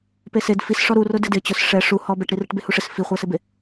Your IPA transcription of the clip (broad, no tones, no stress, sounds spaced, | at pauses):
p e s e d f i s ʂ ɔ ɾ u r ʊ d ɪ d ɪ t͡ɕ ʊ s ʂ ɛ ʂ u h ɔ b ɛ ʈ ɾ i r ɪ ʈ b e h u ʂ ɪ s f i χʷ ɛ s ɪ b e